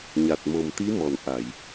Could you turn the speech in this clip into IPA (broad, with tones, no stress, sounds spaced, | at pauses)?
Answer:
ɲ a˨˩ t̚ m o˨˩ m t̪ i˧˥ m ɔ˨˩˨ n ʔ a˨˩˨ j